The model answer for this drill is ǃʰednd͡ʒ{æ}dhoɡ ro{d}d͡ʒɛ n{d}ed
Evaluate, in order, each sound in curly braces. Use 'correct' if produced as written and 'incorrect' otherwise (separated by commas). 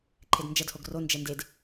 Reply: incorrect, incorrect, correct